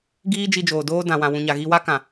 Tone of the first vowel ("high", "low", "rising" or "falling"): high